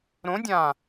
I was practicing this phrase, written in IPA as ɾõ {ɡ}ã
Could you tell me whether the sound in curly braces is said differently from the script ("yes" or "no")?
yes